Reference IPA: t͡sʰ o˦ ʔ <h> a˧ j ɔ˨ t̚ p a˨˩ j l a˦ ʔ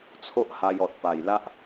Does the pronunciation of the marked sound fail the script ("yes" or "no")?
no